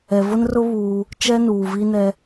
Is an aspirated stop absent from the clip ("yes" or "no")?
yes